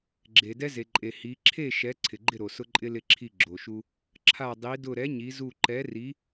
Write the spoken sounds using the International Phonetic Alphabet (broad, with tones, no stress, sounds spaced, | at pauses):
ɡ͡ǁ e˩ d ɛ˧ z e˩ ǃʼ e˩ h i˩˧ ǁʰ e˥˨ ʃ ɛ˨˥ ǀʰ ɪ˩ ɡ͡ǃ ɪ˥˨ ɾ o˩ s ʊ˧ ǃʼ ɪ˧ l ɪ˧˩ ǁʰ i˧˩ ɡ͡ǁ o˩ ʃ u˧ | ǁʰ a˧˩ dˤ i˩˧ d ʊ˧˩ ɾ ɛ˨˥ ɲ i˩˧ z u˧˩ ǃ ɛ˨˥ r i˨˥